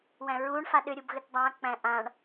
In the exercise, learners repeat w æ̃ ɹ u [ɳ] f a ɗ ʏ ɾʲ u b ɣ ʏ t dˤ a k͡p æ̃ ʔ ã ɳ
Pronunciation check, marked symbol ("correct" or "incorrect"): correct